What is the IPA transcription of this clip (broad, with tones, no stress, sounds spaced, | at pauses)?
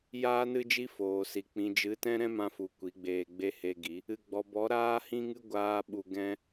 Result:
j aː˦ n ɨ˦ d͡ʒ i˦ f oː˨ s i˨ k͡p ĩ˨ d͡ʒ ɨ˨˦ t ɛ̃˦ ɾ ɛ̃˦ m ã˧ f u˨ kʷ i˨˦ ɡ͡b eː˧ ɡ͡b e˦ h e˧ ɡ i˨˦ | ɨ˨ ɡ͡b ɔ˨ b ɔ˨˦ ɾ aː˦ h ĩ˦ ŋ ɨ˦ ɡʷ aː˦ ɓ u˧ ɡ ɛ̃˦